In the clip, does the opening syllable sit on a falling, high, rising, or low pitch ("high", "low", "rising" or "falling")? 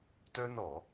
high